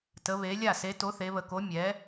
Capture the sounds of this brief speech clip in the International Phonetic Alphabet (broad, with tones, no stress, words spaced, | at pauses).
tə˩˧βe˩˧ lʲa˧˩se˩˧ to˩˥θe˩˧βə˩˧ko˩˥ mʲɛ˩˧